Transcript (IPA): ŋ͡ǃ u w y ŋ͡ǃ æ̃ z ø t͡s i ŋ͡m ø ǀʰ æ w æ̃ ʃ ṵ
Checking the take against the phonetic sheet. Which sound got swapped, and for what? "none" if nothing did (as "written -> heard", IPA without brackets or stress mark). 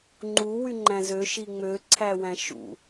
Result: t͡s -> ʃ